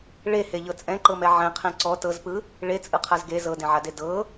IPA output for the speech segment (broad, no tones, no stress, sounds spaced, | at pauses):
ɭ e h e ʎ ɤ t͡sʼ ɛ̃ ǃ ɤ m ɛ ʕ ɛ̃ qʰ ɛ̃ ǀ ɔ t ɤ z p ɯ | ɭ e t͡sʼ ɯ qʰ a z ɡ e z ɤ d ẽ ʕ a d e d ɤ